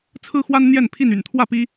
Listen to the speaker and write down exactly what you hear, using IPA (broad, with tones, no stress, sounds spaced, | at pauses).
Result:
t͡sʰ ɹ̩˦ x w a˦ n n̪ j ɛ˥˨ n pʰ i˥˨ n y̰˨˩ n t̪ʰ w ä˥˨ p i˦